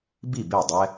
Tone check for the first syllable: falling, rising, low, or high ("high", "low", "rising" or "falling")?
falling